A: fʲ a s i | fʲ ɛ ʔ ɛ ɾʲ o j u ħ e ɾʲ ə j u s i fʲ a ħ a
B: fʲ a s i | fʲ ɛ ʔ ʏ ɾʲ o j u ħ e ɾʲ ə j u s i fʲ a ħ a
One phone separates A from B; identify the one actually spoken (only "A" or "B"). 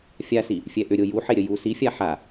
B